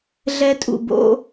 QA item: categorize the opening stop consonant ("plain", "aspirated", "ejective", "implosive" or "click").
ejective